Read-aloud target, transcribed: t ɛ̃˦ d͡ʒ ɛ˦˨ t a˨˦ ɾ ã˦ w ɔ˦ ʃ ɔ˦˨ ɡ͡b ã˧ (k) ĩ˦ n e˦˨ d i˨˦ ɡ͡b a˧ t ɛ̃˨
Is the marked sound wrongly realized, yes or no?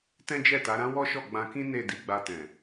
no